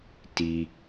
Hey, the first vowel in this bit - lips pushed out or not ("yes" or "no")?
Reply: no